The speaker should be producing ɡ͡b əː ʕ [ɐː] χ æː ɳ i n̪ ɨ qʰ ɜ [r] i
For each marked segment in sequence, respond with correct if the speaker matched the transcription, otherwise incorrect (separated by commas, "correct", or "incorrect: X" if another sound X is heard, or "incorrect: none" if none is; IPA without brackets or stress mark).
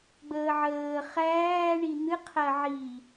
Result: incorrect: əː, incorrect: ʕ